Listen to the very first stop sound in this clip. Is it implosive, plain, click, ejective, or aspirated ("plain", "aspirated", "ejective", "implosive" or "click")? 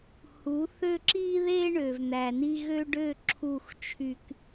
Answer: click